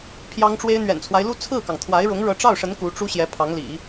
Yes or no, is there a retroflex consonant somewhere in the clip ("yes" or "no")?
yes